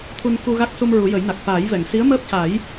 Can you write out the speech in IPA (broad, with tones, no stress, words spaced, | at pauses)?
t̪ʰu˧nku˧ɣa˦˥k̚su˧m ɹu˨˩˦jə˨˩˦jna˨˩k̚ faː˨˩˦jvɛ˨˩˨ŋ si˧˥ə̯məː˦˥p̚ca˨˩˦j